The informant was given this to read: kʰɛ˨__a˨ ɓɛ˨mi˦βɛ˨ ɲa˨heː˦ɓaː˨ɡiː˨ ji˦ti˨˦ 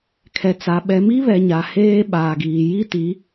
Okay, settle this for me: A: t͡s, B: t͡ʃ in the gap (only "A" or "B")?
A